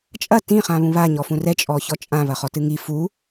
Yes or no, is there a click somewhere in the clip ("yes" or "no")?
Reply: no